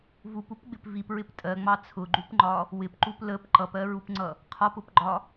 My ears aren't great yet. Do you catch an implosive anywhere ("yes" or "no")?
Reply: no